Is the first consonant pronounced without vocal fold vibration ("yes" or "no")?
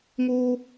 no